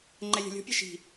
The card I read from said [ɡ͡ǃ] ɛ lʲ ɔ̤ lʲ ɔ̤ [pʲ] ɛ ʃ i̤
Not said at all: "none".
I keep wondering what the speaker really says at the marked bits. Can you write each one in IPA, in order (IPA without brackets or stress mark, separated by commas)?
ŋ͡ǃ, pʲ